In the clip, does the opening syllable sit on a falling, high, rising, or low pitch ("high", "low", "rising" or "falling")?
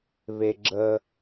high